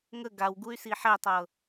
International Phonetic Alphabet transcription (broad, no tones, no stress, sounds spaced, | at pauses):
ŋ ə ɡ a w ɡ u y̯ s i ħ ɛ tˤ ɤ